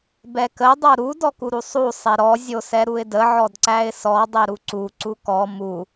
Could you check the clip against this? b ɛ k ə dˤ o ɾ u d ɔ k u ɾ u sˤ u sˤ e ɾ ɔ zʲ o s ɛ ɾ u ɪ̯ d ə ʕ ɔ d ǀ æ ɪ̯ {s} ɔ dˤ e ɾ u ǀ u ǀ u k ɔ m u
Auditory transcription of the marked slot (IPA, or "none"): s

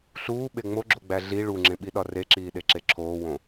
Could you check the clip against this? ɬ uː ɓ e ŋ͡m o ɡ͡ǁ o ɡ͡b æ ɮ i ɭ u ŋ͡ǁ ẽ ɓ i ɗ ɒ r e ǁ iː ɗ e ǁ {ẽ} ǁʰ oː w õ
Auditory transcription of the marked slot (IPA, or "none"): e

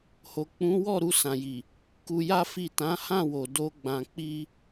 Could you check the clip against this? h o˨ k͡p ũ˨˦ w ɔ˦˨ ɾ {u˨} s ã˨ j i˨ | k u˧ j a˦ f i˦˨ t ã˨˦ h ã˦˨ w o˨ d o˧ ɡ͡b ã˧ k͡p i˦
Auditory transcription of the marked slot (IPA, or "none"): u˧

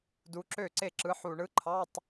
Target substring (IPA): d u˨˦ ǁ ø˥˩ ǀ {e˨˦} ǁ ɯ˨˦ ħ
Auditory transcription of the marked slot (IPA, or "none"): e˥˩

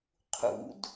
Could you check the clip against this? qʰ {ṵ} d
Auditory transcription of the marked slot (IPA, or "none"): ṵ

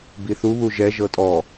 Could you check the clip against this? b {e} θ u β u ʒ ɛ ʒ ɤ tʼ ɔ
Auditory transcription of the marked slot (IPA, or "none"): i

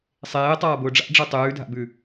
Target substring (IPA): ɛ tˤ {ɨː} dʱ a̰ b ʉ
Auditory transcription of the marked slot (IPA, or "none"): ʉː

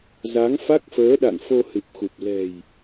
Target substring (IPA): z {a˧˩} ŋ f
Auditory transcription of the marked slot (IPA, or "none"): a˨˦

